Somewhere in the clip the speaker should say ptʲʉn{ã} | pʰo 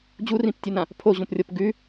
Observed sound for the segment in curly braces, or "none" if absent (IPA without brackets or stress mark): ã